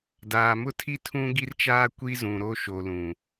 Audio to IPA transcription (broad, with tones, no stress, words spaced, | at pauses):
daː˨mʊ˦tʰi˦ tʰũ˦ɡi˦rt͡ʃaː˦ kʷi˦zũ˨ɾo˦ ʃo˨lũ˨